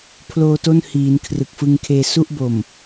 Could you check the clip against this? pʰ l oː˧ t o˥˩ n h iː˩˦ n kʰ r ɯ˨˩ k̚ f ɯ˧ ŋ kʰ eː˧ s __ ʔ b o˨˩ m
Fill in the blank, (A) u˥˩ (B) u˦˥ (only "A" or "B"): A